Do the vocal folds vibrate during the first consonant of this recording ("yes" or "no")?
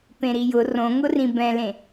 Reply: no